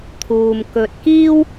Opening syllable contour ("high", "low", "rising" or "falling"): low